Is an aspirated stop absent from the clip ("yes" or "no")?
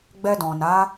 yes